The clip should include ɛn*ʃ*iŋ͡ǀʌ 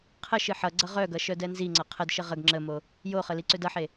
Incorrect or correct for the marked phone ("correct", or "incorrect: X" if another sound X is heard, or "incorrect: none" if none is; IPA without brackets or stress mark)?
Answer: incorrect: z